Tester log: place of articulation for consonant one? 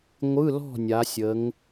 velar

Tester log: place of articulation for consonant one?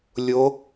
alveolar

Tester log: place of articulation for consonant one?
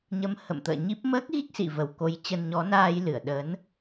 palatal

